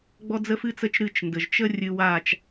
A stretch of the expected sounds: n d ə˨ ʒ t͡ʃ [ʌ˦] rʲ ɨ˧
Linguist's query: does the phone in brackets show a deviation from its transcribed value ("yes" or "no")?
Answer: yes